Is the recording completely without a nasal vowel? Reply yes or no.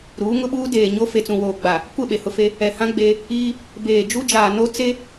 no